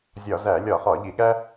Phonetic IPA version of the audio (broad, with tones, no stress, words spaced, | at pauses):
zʲɒ˧˩˧zæ˧˩˧ lʲɒ˧˩˧χɒ˧˩˧ ʎi˧˩˧ɠæ˥